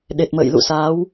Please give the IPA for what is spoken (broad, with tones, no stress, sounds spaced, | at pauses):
ɗ e˨˩ t̚ m ə̰ː˧˨ j l ṵ˧˨ s aː˨˦ w